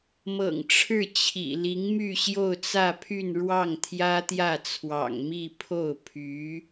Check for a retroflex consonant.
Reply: present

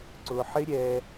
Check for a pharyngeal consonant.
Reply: present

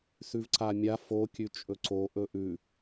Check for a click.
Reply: present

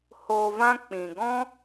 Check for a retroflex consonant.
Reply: absent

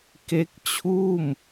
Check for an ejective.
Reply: absent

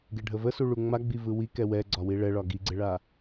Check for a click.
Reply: present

